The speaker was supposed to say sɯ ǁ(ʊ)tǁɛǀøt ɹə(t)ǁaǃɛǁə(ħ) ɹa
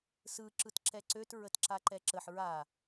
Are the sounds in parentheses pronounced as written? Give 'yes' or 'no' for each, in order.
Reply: no, yes, yes

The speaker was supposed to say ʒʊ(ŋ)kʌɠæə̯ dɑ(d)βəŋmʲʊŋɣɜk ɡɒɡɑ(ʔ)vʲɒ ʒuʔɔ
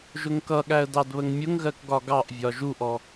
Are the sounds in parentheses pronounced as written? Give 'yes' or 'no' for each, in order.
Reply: yes, yes, yes

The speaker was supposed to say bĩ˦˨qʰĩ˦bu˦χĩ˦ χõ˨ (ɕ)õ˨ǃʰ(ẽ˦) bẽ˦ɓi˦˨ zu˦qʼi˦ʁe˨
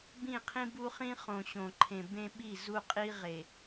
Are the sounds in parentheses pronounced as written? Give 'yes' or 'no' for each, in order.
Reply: yes, no

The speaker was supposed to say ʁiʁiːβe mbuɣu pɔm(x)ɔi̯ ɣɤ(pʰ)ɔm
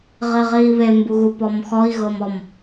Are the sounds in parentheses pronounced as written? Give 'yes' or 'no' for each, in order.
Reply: yes, no

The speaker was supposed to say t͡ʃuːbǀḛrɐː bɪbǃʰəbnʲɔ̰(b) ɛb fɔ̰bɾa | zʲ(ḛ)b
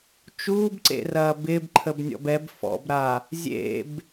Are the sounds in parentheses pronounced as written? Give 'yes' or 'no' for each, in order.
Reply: yes, yes

